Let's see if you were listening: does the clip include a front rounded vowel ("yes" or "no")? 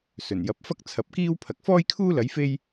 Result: no